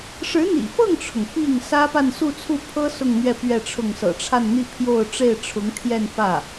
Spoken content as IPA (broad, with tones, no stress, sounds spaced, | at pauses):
ʂ ɻ̩˧˥ n̪ ḭ˨˩ f ɤ˥˩ ŋ ʈ͡ʂʰ ʊ˩ ŋ p i˥˩ ŋ s ä˥ p a˥˧ n s u˥˧ t͡sʰ u˥˩ pʰ ɤ˥ s ʊ˥˧ ŋ n̪ ɥ ɛ˥˧ p ɥ ɛ˥˧ ʈ͡ʂʰ ʊ˥˩ ŋ s ɤ̰˨˩ ʈ͡ʂʰ a˥˧ n n̪ i˥˧ pʰ j o˥˧ ʊ̯ ʈ͡ʂ e˥˩ ɪ̯ ʈ͡ʂʰ ʊ˧˥ ŋ t̪ʰ j ɛ˥˧ n f ä˥˩